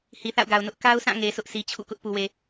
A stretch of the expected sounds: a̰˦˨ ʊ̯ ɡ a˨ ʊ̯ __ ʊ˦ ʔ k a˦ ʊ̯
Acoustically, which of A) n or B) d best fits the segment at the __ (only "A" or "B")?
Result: A